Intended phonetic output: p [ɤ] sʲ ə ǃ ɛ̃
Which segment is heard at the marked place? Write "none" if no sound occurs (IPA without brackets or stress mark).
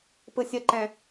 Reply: ɯ